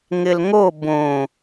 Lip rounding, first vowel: unrounded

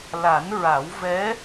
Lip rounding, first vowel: unrounded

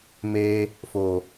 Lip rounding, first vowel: unrounded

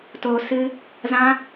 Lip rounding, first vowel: rounded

